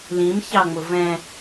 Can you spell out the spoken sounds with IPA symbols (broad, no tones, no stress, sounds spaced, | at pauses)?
l ĩ m ç ɑ ŋ͡m ʊ v ɛ̃